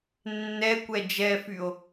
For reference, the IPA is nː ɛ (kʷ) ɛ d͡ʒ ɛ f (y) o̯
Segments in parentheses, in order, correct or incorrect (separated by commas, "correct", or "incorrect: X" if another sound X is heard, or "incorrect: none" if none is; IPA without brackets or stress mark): correct, correct